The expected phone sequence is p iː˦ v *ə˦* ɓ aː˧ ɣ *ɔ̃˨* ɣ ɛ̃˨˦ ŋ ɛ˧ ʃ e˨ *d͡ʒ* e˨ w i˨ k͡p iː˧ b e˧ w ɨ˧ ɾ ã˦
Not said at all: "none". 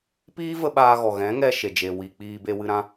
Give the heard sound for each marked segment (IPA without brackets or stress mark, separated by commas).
ə˦, ɔ˨, d͡ʒ